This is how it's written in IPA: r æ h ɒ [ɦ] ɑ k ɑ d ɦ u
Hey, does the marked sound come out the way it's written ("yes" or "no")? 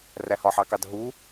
no